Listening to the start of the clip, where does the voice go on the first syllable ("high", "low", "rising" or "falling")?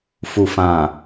low